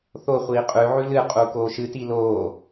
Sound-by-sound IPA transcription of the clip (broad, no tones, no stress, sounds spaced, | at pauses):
θ o χʷ iː qʼ ʉ ʕ ʉ l ɨ qʼ u k oː ʃ ɨ t i l oː